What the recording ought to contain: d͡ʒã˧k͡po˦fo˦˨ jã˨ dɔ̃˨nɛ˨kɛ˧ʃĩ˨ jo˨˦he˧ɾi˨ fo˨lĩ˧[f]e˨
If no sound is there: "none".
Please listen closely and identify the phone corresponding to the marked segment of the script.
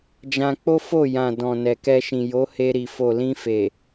f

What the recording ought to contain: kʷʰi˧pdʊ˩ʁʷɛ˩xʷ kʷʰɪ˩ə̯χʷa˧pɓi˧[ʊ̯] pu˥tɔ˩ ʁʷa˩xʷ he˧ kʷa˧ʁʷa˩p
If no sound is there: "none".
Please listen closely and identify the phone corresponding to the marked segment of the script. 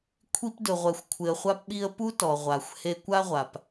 ə̯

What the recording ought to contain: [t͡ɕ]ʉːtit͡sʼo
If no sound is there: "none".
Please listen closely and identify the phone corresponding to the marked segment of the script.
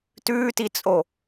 t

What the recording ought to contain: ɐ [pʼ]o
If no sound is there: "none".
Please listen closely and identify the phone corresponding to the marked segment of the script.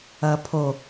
pʰ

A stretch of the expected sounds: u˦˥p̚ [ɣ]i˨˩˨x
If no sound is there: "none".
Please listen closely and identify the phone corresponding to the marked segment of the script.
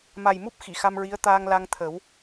x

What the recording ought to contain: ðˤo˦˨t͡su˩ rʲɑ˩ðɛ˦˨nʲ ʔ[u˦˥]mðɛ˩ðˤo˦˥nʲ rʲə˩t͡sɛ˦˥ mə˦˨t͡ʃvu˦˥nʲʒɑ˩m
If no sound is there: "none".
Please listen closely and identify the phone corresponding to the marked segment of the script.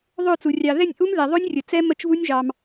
u˦˥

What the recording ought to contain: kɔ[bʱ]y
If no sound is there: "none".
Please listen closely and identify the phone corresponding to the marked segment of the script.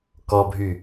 bʱ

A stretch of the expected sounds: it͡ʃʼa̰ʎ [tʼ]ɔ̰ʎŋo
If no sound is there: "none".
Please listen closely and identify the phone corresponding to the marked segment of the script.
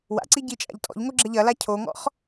tʼ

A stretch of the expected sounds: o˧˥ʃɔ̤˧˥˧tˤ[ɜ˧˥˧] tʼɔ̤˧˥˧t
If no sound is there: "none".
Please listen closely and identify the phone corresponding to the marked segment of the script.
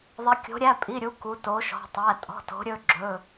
æ˧˥˧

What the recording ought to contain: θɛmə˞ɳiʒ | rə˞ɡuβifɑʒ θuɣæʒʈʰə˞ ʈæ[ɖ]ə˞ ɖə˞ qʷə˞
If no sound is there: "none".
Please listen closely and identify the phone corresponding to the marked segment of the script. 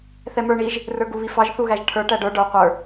ɖ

